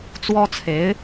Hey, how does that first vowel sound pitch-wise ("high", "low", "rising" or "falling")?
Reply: high